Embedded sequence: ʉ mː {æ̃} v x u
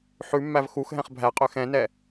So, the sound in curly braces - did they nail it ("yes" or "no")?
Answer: no